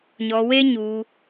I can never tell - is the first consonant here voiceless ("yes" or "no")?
no